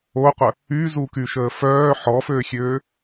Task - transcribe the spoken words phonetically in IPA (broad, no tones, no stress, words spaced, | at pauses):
oqʷə | yzuky ʃəːfœː ħɔføxʲøː